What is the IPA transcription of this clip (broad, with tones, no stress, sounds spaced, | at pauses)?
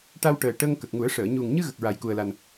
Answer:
ʈ a˧ w ʈ əː˨˩ ʈ ə˧ ŋ k ə˨˩ k̚ ŋ u˨˩˦ ə̯ ʂ əː˨˩˨ ɲ u˨˩ ŋ ɲ ɨ˧ ɣ ə˨˩ k̚ ɹ a˨˩ j k u˨˩ ə̯ l a˨˩ n